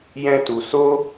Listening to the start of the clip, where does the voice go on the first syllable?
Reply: high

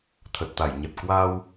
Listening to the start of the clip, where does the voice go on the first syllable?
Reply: low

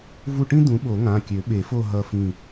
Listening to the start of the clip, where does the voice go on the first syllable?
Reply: falling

